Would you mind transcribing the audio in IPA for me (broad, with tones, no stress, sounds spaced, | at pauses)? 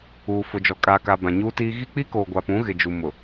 uː˨ f ʊ˨ d͡ʒ ɔ˨ kʼ aː˨ k a˨ b ã˨ ɲ uː˦ t iː˦ ɣ i˦ k͡p i˦ k oː˨ ɡʷ a˨ p ũ˨˦ ɣ ɪ˨ d͡ʒ u˨ m ʊ˨